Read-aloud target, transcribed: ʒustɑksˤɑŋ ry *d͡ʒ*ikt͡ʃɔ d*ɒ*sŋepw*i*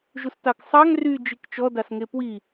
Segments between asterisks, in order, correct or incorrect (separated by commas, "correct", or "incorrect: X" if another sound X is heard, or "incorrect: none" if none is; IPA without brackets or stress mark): correct, incorrect: ɑ, correct